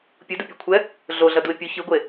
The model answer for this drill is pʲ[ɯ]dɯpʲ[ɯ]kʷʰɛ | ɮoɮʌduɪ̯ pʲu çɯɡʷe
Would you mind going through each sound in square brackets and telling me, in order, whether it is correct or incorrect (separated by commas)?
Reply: correct, incorrect